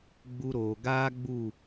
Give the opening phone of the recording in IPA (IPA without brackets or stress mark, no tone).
ɡ͡b